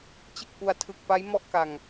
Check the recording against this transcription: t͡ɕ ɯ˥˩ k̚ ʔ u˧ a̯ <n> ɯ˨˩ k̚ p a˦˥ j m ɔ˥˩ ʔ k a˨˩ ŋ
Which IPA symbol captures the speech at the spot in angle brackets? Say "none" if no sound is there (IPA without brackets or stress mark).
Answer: tʰ